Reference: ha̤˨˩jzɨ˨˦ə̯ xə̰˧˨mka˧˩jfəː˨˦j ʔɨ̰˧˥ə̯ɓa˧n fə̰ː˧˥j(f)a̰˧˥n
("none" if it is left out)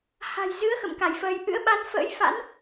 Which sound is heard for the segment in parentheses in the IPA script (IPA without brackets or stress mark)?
f